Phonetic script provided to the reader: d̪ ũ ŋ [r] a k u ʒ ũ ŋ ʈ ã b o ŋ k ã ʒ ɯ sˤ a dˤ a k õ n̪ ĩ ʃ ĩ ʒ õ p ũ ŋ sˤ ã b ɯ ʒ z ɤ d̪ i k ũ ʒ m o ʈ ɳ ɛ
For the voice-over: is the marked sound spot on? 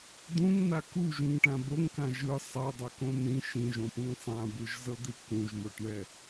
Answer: no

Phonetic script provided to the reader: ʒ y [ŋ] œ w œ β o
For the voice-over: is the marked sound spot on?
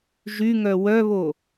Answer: yes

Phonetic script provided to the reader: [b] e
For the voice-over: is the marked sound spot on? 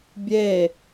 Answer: no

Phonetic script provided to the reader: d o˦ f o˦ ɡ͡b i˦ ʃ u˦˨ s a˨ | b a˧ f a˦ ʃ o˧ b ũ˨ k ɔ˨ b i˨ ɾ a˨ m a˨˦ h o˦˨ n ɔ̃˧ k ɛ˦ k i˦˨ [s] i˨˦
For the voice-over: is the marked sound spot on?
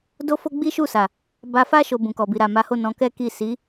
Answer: yes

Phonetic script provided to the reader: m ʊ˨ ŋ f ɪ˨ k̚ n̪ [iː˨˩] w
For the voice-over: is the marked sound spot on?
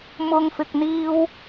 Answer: no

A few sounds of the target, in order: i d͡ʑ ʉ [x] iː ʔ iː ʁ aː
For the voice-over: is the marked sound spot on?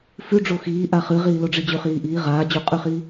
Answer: no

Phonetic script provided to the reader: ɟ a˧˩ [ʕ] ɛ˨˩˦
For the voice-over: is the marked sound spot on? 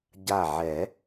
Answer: yes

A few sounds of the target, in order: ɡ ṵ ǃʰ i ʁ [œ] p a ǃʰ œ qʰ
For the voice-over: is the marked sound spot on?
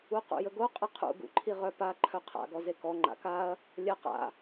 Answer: yes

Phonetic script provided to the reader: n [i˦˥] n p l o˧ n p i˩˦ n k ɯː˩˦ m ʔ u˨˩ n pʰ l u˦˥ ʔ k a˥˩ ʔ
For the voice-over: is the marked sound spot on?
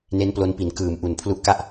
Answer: no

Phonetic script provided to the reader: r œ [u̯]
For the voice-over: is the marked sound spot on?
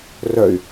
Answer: no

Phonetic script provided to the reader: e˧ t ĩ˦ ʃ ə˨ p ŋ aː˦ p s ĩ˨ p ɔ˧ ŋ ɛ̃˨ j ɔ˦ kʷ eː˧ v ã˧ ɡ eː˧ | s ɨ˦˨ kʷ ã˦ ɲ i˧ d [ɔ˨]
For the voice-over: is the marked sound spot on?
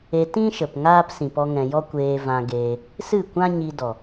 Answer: yes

